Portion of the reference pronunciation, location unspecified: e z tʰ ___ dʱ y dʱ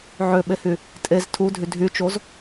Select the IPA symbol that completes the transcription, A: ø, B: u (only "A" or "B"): B